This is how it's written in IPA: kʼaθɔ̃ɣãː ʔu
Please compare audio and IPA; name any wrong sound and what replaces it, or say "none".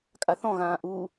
none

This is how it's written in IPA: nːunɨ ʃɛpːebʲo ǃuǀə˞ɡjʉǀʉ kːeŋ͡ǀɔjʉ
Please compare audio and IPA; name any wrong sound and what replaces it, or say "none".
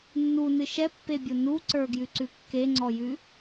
ǃ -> n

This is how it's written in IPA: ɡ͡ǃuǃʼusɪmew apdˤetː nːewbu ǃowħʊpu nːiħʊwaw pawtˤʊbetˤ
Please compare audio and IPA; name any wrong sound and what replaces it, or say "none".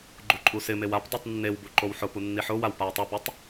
tː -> tˤ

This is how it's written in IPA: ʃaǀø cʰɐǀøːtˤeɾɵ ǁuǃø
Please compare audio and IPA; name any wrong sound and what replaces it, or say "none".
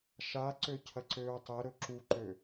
none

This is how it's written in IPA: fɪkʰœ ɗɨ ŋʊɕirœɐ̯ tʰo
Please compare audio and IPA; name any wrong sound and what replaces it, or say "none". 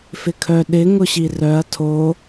ɨ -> ɪ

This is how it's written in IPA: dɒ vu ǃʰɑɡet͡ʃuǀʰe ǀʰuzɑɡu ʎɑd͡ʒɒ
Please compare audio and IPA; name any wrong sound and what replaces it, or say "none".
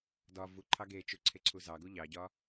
d͡ʒ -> ɟ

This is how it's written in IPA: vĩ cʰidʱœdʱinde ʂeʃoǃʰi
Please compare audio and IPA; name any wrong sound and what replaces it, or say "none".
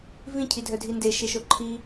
ʂ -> ʃ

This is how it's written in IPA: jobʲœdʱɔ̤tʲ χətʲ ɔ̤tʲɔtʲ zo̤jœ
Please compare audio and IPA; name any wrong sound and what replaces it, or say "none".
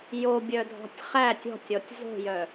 ə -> æ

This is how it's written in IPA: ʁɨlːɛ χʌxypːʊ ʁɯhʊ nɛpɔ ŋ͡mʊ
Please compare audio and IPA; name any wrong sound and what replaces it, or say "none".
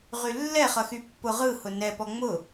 ɨ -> y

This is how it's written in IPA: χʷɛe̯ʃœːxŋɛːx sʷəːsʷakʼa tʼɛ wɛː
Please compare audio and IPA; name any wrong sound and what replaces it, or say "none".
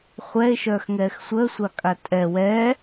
none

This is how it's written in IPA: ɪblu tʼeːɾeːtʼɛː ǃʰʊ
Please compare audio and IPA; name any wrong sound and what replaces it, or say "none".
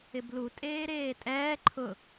none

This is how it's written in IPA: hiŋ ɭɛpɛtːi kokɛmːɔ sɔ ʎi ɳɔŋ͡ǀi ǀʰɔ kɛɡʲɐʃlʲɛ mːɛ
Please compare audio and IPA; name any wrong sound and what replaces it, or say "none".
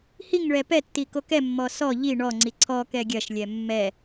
none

